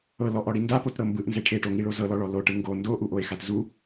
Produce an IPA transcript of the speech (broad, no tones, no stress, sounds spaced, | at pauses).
ɤ l ɔ ʔ ɔ ɽ i n d a p o t ɾ ɤ m b ɯ ʔ n z e ʈʰ e ʈ o ŋ i ɭ o z ɤ l ɔ ɭ ɔ l o ʈ ɯ ŋ ɡ o n d o ʔ u ʔ o e̯ x a t z u